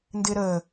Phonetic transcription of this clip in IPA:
n d ɪː ɾ əː

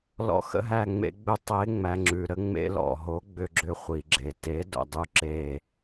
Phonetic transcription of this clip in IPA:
l ɔ̰˩˥ x ə̰˧ ɦ æ˧˩ ŋ͡m ḛ˧ ɡ͡b ʏ˧ tˤ e˩˥ ŋ͡m æ˩ ŋ͡ǁ ʉ˩ ɾ ə˧ ŋ͡m ḛ˧ l ɔ̰˩ ɦ o˩˥ ɡ͡b ʏ˧˩ ɡ͡ǁ ʏ˧˩ χʷ i˩ ɡ͡ǁ e˩ t e˩˥ d o̰˩ dˤ ʉ˧˩ ǁ e˧˩

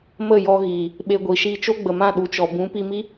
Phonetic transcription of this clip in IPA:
m ə˦˨ j ɔ˧ ɣ iː˨ | ɓ e˧ ɡʷ i˨ ʃ iː˧ t͡ʃ o˦ ɡ͡b ə˨ m ã˦˨ ɗ u˨ t͡ʃ ɔ˨ b ũ˨˦ p i˧ m i˦

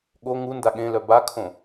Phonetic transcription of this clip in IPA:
ɠ o ŋ u n d a ɠ ẽ l œ b a kʰ õ

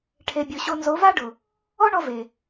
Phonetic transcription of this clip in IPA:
ʈʰ e˨ bʲ o˨ ɕ o˧ n z o˨˦ v a˦ ɖ ʊ˨ | ɔ˦ ɳ ɔ˧ v e˨

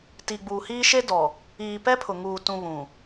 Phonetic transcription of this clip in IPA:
t i˨ ɡ͡b uː˨ h iː˦ ʃ e˦ d ɔ˨ | iː˨ p ɛ˦ pʰ ʊ˨ ŋ uː˨ t ũ˨ β ũ˨

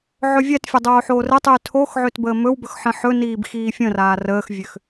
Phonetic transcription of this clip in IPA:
ʕ ɵ vʲ ɛ t fʲ o dˤ oː ħ oː r ɘ tˤ yː tʰ o x ʕ ø t b əː m ɵ w b ɵ x ħ ə̃ ħ ɵ n iː b x iː fʲ ə̃ r aː r əː x vʲ ø x

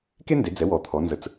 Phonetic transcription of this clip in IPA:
k e˥ n d e˩˧ d͡z ɛ˩˧ w ɔ˩ t̪ʰ ɔ˩˧ n z ə˩˧ t͡s

